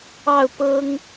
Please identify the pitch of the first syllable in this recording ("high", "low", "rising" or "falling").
falling